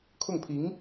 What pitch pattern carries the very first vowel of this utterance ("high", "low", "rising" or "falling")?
falling